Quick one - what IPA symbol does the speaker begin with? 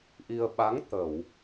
ʔ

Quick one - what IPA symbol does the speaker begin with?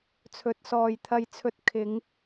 t͡sʰ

